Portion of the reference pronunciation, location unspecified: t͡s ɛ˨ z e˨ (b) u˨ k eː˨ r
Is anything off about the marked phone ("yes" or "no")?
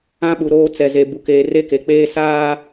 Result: no